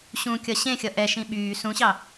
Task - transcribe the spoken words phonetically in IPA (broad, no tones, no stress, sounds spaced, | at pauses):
ɕ ũ kʲ ʌ ɕ ẽ xʲ ʌ ʔ ɛ ʃ ĩ ɓ yː s ũ ɕ ɑ